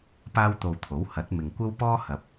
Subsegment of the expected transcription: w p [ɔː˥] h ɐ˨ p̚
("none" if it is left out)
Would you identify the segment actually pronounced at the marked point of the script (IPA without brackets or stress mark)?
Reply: ɔː˥